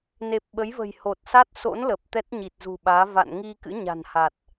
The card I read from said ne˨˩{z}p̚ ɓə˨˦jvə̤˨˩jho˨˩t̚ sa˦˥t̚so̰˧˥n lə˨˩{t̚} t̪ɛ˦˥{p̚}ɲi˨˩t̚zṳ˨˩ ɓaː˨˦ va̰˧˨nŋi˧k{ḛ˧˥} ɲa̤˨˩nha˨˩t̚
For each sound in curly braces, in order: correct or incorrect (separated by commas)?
incorrect, incorrect, incorrect, incorrect